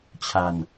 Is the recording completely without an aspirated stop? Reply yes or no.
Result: no